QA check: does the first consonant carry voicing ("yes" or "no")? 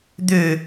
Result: yes